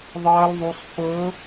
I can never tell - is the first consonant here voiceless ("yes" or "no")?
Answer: no